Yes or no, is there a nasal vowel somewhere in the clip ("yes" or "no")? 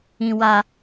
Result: yes